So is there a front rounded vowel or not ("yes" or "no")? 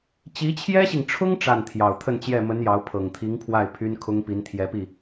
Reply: yes